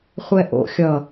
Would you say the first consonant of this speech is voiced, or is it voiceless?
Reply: voiceless